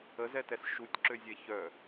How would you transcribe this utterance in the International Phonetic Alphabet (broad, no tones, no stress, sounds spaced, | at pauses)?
ə z ɛ t ɛ s ʃ u tʲ ǁ ø zʲ ɛ ç œ